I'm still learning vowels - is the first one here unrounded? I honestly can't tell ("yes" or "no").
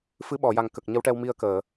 yes